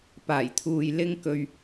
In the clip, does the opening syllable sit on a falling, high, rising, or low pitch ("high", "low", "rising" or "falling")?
low